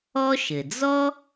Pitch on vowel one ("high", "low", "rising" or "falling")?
high